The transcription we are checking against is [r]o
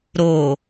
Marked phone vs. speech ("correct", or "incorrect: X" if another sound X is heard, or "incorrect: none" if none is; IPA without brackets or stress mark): incorrect: ɾ